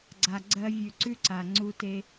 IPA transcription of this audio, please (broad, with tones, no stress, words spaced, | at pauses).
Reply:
ɡ͡ǀa˨ɡ͡ǀɜ˧vʲʉ˨ǀʉ˦ ǀa˨ŋ͡ǀu˦te˦